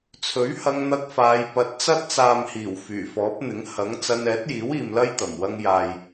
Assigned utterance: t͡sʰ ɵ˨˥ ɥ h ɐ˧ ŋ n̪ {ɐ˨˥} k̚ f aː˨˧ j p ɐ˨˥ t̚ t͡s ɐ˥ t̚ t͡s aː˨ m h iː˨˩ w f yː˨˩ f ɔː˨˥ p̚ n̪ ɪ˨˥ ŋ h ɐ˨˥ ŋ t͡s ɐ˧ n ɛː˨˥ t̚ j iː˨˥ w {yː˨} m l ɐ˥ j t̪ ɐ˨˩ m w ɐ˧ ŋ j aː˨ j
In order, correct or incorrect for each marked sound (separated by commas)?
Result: incorrect, incorrect